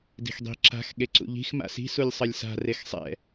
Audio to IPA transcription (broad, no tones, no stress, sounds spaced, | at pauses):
d i̤ x dˤ i̤ ǁ a̤ x ɠ e ǀ ṵ ʎ i̤ x m a̰ s i̤ s u lʲ sˤ ʌ lʲ s a̤ r e x sˤ ɛ̰